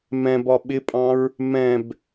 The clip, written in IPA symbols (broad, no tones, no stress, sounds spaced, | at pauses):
m ɛ̃ b ɒ ɓ ɪ pʼ ɑ̃ ɹ | m ɛ̃ b